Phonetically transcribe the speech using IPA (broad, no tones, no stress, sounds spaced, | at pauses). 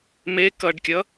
m e k ʌ ɖ kʲ ʌ